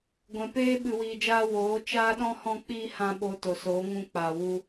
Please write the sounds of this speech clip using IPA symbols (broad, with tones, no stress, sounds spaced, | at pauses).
ɡʷ ɛ̃˨ p eː˦ ɓ ɨ˨ w iː˨ d͡ʒ aː˧ w oː˨˦ t͡ʃ aː˦ ɗ ɔ̃˦ h ɔ̃˧ k͡p iː˧ h ã˧ ɓ oː˧ t o˨ s oː˨˦ ŋ ũ˧ k͡p aː˨ w u˧